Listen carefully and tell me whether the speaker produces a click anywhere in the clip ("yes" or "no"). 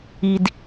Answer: no